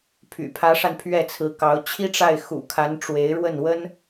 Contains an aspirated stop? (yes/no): yes